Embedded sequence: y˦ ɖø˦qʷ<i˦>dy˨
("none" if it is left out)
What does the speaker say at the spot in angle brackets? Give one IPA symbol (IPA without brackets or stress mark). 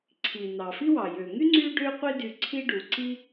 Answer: i˦